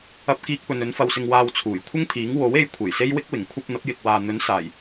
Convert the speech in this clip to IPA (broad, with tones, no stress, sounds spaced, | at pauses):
ɐ˧ p̚ k iː˧ k̚ p ɵ˨ n ɵ˨˥ n f ɐ˧ w s ɪ˧ ŋ w aː˧ w t͡sʰ uː˨˩ j kʷʰ ɪ˥ ŋ t̪ʰ iː˨˥ ŋ w o˨˥ w e˧ j kʷʰ e˨˩ j s e˥ j w ɪ˥ k̚ w ɪ˨˩ ŋ kʷʰ ɐ˧ p̚ n̪ ɐ˨˥ p̚ j ɪ˨ k̚ w aː˨ n̪ ɵ˨˥ n s aː˨˩ j